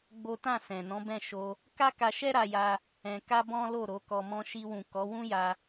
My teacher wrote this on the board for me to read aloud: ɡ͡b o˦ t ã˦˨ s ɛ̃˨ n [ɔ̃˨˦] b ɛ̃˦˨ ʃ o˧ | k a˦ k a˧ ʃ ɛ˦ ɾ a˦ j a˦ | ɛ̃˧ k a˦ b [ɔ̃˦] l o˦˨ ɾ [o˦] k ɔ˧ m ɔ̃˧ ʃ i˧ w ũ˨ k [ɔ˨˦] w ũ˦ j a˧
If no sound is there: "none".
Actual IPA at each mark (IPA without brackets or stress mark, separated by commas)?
ɔ̃˨˦, ɔ̃˦, o˨˦, ɔ˨˦